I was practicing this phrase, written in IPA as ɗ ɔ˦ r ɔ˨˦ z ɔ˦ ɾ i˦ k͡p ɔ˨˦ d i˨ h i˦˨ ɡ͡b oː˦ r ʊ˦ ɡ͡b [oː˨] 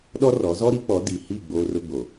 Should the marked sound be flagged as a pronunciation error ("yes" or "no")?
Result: yes